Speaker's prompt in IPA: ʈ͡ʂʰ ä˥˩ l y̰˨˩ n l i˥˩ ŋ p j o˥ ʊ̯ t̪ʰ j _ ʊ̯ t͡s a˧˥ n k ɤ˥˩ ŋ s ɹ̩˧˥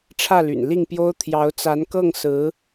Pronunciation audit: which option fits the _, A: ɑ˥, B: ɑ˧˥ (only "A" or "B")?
B